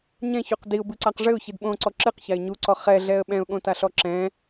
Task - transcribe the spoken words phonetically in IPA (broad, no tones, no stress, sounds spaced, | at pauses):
ɲ ɛ̃ ç u q d i ʊ̯ b ɨ ǀ a q ʐ ɘ ʊ̯ ç i d ɓ õ ǀ ɔ ǁ ɨ q ç a ɪ̯ ɲ u ǀ ɔ χ ɛ ɮ ɛ ə̯ ɓ ɛ̃ ʊ̯ ɠ õ t a ɬ ɔ ǁ ɛ̃